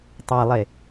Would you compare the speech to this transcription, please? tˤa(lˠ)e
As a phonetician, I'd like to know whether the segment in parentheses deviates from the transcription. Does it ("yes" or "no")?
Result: no